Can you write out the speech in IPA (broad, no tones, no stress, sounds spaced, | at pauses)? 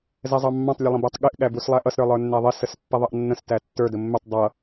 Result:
z ɛ zˤ ɑ mː ɑ̃ tˤ lʲ ʌ lˠ ə̃ b æ tˤ ɠ ɪ ʔ ɠ æ b u s lˠ æ ʔ ʌ s ɾ ə˞ lˠ ə˞ nː æ ðˤ ɪ s ə s pː ɛ ðˤ ʌ ʔ nː ə̃ s t æ tː ə˞ d ə mː ɪ tˤ dˤ ʌ